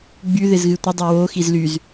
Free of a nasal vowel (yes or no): yes